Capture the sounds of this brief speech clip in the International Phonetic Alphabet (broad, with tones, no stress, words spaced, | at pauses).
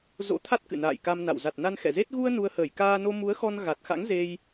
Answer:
zo̰˧˥t̪ʰa˦˥t̚ kɨ̰˧˨na̰ː˧˨jka˧mna̰˧˨w za˨˩t̚na˧n xɛ̰˧˨ze˦˥t̚ ɣu˧ə̯ nu˧ə̯həː˧˩j kaː˧no˧ mu˨˦ə̯xɔ˧n ɣa˨˩t̚xa̰˧˥ŋ ze˧j